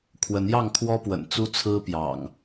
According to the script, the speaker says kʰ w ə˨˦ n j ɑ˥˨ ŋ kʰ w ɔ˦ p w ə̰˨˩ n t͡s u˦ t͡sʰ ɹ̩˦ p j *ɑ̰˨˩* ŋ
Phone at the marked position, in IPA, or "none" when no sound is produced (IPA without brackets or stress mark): ɑ̰˨˩